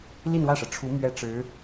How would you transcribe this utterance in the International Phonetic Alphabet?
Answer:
li˥˧nwä˥˩ʂɤ˩ʈ͡ʂʰu˧˥ mɥɛ˥ʈ͡ʂɻ̩˧˥

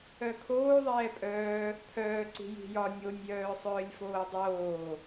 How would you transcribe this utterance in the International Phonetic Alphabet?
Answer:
œkʰoː ðˤɛːpʼœː | pʰœːǀi̤ ji̤jɒ nʲonʲjœː sˤœːlʲfoːdˤoː

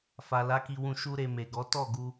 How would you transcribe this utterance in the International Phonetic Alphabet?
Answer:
fa˨la˨˦ki˧wũ˧ ʃu˧ ɾe˨ me˨ɡɔ˨˦ tɔ˦˨ɡu˧

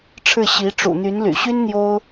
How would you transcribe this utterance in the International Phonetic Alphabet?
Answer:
ʈ͡ʂʰɻ̩˥˩ɕi˧˥ ʈ͡ʂṵ˨˩n̪y˧˥nly̰˨˩ ɕy˥n n̪jo˥ʊ̯

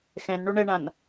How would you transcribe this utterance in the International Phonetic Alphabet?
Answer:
xɛ̃n ɳoɳɛɳãn

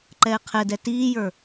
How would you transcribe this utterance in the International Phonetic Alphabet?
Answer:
ǃɛːqʰɛdɛ tiːjə˞

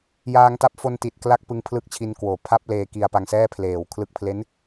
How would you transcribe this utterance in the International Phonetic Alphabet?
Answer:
jaː˧ŋta˦˥p̚fo˧n ti˨˩t̚kla˥˩k̚ pɯ˧ŋpʰlɯ˦˥k̚t͡ɕʰi˧nkwoː˨˩ pʰa˥˩p̚ leː˧ki˧a̯pa˧ŋsɛː˥˩ pʰleː˩˦w kʰlɯ˥˩k̚ pʰle˦˥n

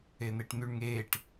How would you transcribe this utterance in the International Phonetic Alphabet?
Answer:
en̪eʈn̪yɳ ŋeːʈ

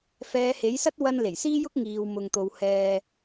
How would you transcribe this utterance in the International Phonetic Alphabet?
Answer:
fɛː˨˧he˨˥jsɐ˥t̚ wɐ˧n le˨˩jsiː˥jʊ˥k̚ ŋiː˨w mʊ˨ŋt̪o˨w hɛː˧

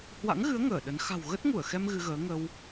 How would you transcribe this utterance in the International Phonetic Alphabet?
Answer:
hwa̰˧˥ŋɣɨ˨˦ə̯ ŋəː˧˩ɗə˨˦n xa̤˨˩wɣə˦˥t̚ŋu˧˩ə̯xɛ˧m ɣɨ˧ɣəː˨˦ ŋə˧w

